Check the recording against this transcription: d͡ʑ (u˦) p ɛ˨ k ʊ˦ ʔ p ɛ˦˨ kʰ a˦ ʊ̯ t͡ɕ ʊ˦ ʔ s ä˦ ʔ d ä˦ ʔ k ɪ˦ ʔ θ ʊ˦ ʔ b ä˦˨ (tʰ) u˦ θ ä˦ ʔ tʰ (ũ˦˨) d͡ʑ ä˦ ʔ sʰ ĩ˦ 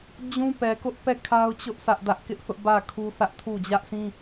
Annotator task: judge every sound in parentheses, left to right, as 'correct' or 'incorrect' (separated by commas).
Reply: incorrect, incorrect, incorrect